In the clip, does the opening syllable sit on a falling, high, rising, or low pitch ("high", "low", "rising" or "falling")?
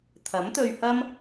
rising